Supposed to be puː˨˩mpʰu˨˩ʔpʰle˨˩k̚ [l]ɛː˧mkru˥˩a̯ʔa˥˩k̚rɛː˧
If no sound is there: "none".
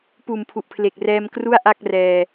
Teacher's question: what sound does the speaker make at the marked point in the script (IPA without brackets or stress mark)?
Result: r